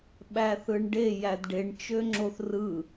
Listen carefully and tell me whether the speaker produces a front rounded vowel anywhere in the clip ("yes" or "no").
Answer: yes